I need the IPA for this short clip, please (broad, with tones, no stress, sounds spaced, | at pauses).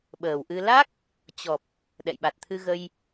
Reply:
ɓ əː˨˩ w ʔ ɨ˧ l a˦˥ k̚ | t͡ɕ ɔ˨˩ p̚ | ɗ ɛ̰˧˨ j ɓ a˨˩ t̚ t̪ʰ ɨ˧ ɣ ə˧ j